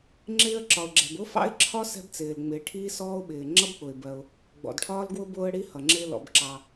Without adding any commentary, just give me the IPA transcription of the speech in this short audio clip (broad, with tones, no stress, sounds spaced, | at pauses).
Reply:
ŋ͡ǁ ɪː˥ ə̯ ǁ ɒ˩ ʊ̯ ɡ͡ǁ ɛ̤˩ b ʊ˥ f ɑ̰˥ ɪ̯ ǁʰ ɒ˥ s ɛ̤˥ b t͡s ɪː˩ l ŋ͡m ɪː˩ ʈʰ iː˥ s ɔː˥ ʊ̯ ɓ ɪː˩ ŋ͡ǁ ʌ˥ b k͡p ʊ˩ ɪ̯ b ɜ˩ ʊ̯ | ɡ͡b ɔ̰˩ d ʈʰ ɒː˥ l ɡ w ʊ˥ b ʊː˥ ə̯ ɽ i˥ h ʌ˩ ŋ͡ǁ ɪ˥ l ɔ̰˩ b ǁ ɑ˩